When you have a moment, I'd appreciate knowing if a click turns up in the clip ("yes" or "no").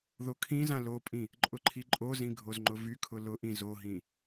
yes